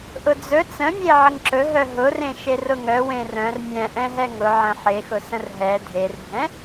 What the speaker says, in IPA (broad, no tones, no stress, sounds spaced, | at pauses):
ʔ ʊ d͡z ɵ t͡s ə̃ mʲ e ʕ ə ŋ ǁ ɵ ɦ œ ɦ ʊ r ẽ ʃ e r ʊ ŋ œ w ẽ r œ̃ r mʲ ɛ̃ ʔ ɛ̃ ɦ ɛ ŋ ʊ ʕ ə̃ ħ e x ʊ s ə̃ r ɦ ɛ dʱ e r bʱ ɛ̃